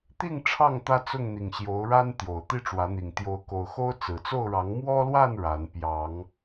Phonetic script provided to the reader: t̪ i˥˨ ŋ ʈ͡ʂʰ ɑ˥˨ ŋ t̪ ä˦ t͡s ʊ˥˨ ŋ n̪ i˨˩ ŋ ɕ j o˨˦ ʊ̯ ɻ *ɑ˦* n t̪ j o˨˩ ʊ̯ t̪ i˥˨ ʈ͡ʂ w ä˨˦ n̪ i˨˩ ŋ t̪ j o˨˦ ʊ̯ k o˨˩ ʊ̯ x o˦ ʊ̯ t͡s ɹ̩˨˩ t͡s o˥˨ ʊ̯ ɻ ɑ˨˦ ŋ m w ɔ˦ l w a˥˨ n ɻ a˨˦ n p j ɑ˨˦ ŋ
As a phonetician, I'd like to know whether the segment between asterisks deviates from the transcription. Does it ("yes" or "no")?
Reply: yes